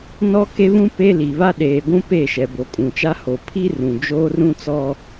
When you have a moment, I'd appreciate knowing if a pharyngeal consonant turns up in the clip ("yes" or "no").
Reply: no